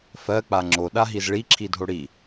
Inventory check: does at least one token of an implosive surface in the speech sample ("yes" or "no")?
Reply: yes